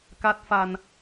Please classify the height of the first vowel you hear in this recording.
low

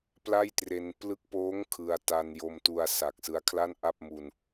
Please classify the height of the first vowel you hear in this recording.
low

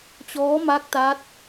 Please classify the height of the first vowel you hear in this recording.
mid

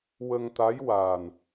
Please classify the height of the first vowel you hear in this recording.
mid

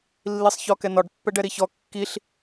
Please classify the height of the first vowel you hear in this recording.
high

